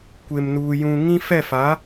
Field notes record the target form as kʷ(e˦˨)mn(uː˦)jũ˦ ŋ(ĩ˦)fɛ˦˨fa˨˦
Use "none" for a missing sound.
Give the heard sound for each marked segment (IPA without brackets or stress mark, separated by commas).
e˦, uː˦, ĩ˦